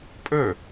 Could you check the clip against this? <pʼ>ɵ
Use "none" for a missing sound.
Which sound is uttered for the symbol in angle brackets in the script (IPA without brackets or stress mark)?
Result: pʼ